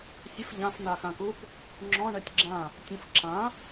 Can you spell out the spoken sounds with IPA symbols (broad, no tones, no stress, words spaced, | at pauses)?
sʲəf ʎãf n̪axãkup | ŋ͡ǁɔ̃ ɳɛtʲɡ͡ǁã | tʲə̃f ǁã